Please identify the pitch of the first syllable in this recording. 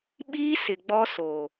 high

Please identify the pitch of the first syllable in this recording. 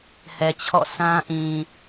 low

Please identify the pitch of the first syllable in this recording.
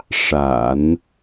low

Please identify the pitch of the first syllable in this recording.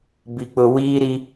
low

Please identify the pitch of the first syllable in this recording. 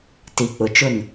low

